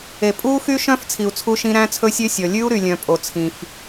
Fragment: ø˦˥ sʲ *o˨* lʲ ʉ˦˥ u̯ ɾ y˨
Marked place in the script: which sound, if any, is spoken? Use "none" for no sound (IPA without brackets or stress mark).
ɔ˨